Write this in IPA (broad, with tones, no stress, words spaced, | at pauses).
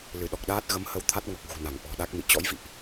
lɨ˧˩ɗɔ˨˩k̚ɗaː˦˥t̚ ɣə˨˦mhə˧wt̪ʰa˦˥t̚ ŋɔ˨˩k̚ɣṳ˨˩ na˧˩ŋʔɔ̤˨˩ɗa˦˥k̚mḭ˧˨ t͡ɕɔ̰˧˥jvḭ˧˨ʔ